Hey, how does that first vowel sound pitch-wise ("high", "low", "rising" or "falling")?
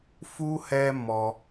high